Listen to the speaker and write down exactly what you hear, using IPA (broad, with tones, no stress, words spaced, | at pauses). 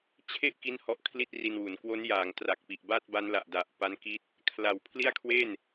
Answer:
t͡ɕʰe˥˩ʔ ki˦˥n hɔ˦˥ʔkʰli˥˩t̚ri˧nwu˩˦n kwo˦˥njaː˩˦ŋtra˨˩k̚ pi˨˩ʔba˥˩t̚ba˦˥nla˨˩ʔ da˨˩ʔpa˦˥nki˦˥t̚ | kʰla˨˩w pʰli˥˩a̯kʰwe˥˩n